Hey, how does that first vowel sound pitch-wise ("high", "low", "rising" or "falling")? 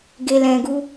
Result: low